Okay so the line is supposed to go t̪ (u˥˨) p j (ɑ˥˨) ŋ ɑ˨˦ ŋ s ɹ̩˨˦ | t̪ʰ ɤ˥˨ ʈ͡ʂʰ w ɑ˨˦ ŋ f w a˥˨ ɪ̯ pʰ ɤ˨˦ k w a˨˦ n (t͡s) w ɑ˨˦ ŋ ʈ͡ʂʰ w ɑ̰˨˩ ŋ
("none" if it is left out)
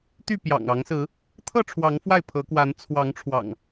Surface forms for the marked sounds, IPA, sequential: y˥˨, ɑ̰˨˩, t͡sʰ

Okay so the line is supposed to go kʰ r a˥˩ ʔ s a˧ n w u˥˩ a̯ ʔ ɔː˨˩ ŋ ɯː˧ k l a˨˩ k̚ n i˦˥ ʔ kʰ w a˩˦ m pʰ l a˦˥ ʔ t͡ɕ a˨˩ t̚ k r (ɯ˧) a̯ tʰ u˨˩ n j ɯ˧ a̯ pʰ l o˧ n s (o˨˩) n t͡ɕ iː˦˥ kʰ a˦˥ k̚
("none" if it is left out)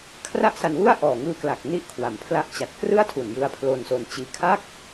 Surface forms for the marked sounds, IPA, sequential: ɯ˥˩, o˧

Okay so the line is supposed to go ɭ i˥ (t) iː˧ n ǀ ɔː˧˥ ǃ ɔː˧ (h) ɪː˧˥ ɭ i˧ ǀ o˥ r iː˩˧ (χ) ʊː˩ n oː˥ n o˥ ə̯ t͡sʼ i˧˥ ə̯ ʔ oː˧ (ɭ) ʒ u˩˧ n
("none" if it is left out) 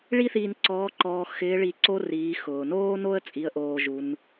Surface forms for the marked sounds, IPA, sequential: θ, x, x, none

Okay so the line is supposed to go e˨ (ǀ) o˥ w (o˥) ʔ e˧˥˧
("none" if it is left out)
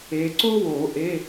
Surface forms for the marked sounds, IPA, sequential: ǀ, o˨˩˦

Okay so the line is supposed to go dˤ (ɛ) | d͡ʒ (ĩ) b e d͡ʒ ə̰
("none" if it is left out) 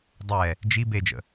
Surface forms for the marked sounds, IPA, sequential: ɛ, i

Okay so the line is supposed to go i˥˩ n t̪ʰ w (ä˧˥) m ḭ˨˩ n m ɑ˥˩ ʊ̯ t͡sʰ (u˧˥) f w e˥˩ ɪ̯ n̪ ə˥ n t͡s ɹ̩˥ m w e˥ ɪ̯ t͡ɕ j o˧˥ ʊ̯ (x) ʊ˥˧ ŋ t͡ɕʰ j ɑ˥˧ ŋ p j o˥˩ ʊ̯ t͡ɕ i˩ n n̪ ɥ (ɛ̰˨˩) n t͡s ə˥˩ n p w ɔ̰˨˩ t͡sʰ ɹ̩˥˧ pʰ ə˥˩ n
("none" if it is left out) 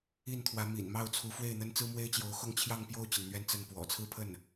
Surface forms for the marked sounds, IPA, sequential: ä˧˥, u˧˥, x, ɛ˥˧

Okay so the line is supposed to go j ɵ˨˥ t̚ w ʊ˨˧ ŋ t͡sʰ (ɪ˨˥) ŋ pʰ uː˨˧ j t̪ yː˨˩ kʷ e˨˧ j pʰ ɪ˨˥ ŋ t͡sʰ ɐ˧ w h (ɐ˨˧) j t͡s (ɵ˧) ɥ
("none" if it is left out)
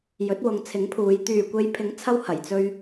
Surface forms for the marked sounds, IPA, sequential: ɪ˨˥, ɐ˨˩, ɵ˧

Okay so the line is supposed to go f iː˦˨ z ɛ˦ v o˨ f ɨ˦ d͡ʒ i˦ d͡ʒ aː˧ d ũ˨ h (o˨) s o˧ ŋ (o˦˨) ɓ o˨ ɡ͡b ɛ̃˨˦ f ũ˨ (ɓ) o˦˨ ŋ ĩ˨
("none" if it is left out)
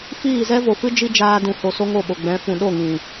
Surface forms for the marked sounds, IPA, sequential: o˨, o˦˨, ɗ

